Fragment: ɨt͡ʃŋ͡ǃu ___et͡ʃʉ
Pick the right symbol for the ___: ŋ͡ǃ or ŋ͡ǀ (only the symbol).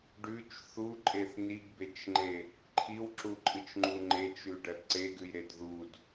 ŋ͡ǃ